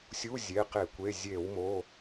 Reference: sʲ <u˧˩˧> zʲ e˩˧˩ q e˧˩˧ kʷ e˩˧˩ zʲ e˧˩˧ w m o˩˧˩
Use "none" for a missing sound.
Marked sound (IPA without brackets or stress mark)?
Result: u˧˥˧